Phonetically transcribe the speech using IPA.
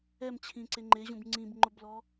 ɛ m t͡ɕʰ ĩ ǀ e ŋ͡ǃ e ʑ ũ b ŋ͡ǀ ĩ b ŋ͡ǃ ʊ b l ɔ

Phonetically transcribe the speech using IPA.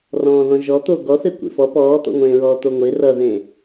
r ɔ̃ː ð ɔ̃ ʒ ɔ t̪ o ɡ ɔ θ e kʷ ḛ f ɔ p ɔː t̪ ɔ̰ ŋʷ ẽː ɹ ɔː t̪ o ŋʷ e r ʌ ð ẽ

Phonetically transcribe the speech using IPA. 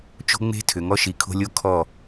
t͡ʃ o̤˦ ŋ͡m e̤˦ tʰ ʏ˨ ŋ ɔ˦ ʃ i˨ kʰ o̤˦ lʲ o˦ kʰ ɔ˦˨

